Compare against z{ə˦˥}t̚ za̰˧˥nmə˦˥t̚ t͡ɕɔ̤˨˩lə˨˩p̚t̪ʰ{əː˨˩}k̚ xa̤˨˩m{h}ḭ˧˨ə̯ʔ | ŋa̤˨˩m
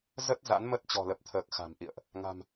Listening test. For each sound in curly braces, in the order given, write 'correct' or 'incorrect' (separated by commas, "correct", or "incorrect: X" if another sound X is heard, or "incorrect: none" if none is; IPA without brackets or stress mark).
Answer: correct, correct, incorrect: ʔ